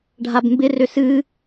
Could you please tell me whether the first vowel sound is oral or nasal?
oral